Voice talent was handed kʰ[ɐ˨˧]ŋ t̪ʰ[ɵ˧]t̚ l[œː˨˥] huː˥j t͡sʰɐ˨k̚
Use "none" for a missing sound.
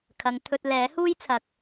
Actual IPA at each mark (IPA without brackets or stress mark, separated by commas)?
ɐ˨˧, ɵ˧, ɛː˨˥